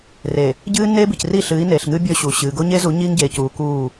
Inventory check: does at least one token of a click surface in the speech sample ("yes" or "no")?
no